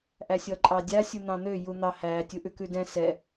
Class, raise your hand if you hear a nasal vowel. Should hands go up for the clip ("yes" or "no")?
yes